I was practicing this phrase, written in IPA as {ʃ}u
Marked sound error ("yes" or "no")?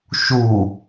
no